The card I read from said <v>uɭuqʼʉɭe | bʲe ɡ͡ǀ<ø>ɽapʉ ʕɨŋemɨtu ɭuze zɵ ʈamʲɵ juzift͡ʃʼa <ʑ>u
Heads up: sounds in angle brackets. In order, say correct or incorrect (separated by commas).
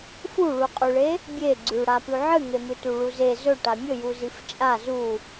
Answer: incorrect, incorrect, incorrect